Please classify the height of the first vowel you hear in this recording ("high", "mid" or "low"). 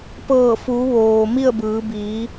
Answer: mid